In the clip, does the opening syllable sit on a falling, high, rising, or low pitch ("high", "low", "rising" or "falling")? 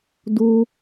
high